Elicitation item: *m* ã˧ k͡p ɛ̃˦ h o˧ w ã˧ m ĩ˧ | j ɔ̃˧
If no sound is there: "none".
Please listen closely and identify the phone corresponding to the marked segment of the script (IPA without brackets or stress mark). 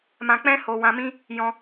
m